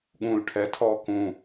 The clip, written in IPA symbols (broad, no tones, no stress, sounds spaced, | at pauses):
ɠ ũ l ʈʰ ɛ tʰ ɔː k ũ